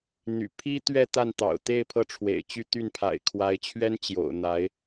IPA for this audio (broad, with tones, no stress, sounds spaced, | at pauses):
n̪ y̰˨˩ pʰ i˥ t̪ ɥ ɛ˥˧ t̪ a˥˩ n t̪ ɑ̰˨˩ ʊ̯ t̪ e˥˧ ɪ̯ pʰ ɤ˥˩ ʈ͡ʂʰ w ḛ˨˩ ɪ̯ t͡ɕ y˥˧ t̪ y˥˩ n pʰ a̰˨˩ ɪ̯ kʰ w a˧˥ ɪ̯ t͡ɕʰ ɥ ɛ˥ n t͡ɕ j o̰˨˩ ʊ̯ n̪ a˧˥ ɪ̯